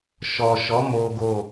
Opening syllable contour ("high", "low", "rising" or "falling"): low